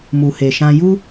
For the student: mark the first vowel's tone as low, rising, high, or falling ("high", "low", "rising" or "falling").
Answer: low